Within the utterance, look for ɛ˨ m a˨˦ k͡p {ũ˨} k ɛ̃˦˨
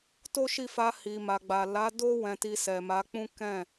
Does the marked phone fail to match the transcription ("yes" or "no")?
yes